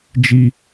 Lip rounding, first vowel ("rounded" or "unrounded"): unrounded